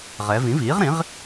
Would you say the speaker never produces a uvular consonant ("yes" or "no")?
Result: no